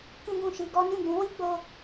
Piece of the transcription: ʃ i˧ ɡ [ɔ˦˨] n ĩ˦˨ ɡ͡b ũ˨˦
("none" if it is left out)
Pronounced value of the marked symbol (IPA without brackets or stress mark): ɔ˦